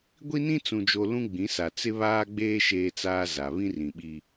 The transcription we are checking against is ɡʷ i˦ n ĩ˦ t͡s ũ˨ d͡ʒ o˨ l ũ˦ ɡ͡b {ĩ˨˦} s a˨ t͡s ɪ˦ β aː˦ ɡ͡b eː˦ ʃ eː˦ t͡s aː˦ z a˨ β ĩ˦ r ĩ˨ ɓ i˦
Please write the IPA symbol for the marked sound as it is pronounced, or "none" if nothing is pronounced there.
ĩ˨˦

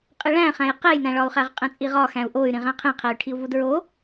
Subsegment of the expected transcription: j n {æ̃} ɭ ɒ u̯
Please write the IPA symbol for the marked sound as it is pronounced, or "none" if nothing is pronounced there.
æ̃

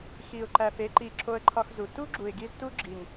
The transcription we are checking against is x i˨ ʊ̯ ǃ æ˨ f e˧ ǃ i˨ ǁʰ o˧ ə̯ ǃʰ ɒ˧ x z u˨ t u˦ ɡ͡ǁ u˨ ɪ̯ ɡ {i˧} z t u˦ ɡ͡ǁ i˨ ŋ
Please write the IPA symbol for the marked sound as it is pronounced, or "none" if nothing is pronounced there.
i˧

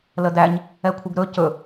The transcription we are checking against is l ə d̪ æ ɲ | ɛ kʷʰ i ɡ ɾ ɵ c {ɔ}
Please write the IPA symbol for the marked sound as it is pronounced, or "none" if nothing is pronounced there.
ɵ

